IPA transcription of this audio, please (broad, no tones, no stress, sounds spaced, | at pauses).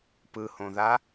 p ɯ h õ ð a